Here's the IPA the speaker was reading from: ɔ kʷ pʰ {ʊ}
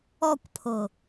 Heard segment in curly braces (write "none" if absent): ʊ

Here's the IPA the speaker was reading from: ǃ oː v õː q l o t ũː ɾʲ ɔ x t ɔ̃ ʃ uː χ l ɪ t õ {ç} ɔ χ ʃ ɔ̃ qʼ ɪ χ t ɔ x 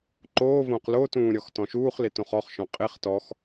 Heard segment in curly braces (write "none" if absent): χ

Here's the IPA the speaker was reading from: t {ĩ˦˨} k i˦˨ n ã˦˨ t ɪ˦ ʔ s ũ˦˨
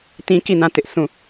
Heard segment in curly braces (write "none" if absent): ĩ˦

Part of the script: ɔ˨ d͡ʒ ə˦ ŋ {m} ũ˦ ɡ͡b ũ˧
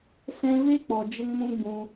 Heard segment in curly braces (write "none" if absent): m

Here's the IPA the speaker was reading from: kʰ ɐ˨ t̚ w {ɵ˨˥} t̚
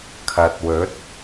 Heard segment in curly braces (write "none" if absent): ɵ˨˥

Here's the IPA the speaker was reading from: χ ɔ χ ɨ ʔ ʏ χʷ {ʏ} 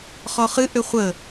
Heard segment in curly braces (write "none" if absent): ə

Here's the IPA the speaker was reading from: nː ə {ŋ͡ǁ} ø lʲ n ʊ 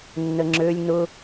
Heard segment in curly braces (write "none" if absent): ŋ͡ǁ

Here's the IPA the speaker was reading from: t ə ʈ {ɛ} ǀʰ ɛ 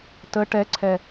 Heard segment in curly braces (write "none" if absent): ɛ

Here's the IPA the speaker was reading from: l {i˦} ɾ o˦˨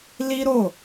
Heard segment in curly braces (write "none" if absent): i˦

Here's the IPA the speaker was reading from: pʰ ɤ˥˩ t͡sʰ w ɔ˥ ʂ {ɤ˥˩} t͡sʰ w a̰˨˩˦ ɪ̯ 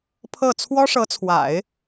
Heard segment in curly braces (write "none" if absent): ɤ˧˥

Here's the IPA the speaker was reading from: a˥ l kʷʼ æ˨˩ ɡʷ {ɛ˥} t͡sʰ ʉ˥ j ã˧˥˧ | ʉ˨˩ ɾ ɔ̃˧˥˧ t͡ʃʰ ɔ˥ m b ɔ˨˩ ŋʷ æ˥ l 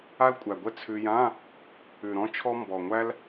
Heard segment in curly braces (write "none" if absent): ɛ˥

